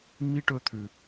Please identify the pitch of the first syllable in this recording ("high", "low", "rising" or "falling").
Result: high